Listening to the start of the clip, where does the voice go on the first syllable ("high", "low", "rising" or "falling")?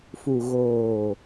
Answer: low